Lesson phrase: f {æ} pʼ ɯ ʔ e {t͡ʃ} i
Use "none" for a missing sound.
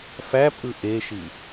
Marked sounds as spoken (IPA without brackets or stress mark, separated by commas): æ, ʃ